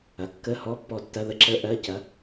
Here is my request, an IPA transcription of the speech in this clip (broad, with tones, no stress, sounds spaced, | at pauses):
ɐ˩˧˩ kː ə˧˥˧ h ɔ˧˥˧ pː ɔ˦˨ tː ɐ˧˥˧ ð ə˧˥˧ ǁ ə˧˥˧ ʔ ɜ˧˥˧ c ɐ˩˥